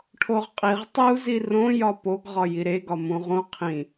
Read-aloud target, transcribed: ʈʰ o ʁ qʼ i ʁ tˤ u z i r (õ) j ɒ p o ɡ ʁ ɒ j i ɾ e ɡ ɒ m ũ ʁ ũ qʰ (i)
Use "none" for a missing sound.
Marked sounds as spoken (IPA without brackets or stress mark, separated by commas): õ, ĩ